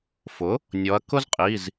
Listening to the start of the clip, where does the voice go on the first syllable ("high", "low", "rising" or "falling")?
rising